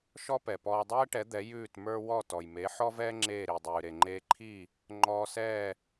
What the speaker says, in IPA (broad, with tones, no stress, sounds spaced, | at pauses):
ʃ ɔ˥ p ɛ˩ p ɔː˧ dˤ ɛː˥ ʈ ɛ˩˥ d̪ ɛ˩˥ j ʉː˥˩ t m ə˞˥ w ɔ˥˩ t ɔ˩ j m e˩˥ ħ ɔ˥ v ɛː˥ ŋ͡ǁ eː˥˩ ɾ i˩ dˤ ʉː˩ ɾ e˩ ŋ͡ǃ eː˧ ǃʰ i˥˩ | ŋ͡ǃ ɔː˧ s ɛː˥˩